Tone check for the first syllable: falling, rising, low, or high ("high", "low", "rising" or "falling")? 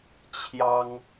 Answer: high